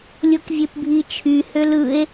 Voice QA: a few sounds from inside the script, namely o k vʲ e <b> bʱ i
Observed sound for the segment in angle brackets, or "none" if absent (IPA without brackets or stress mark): p